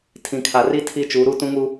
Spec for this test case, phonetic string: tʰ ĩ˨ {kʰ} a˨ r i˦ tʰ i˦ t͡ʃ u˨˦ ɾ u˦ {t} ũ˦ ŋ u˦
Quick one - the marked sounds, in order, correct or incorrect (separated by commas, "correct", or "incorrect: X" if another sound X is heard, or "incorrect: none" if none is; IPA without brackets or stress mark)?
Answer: correct, correct